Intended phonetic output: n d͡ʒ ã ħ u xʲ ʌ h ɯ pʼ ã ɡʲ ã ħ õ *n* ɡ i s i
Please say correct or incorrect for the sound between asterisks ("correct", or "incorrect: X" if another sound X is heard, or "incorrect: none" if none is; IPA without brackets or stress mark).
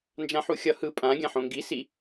incorrect: ŋ